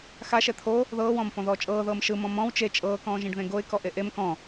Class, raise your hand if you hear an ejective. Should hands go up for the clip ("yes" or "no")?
yes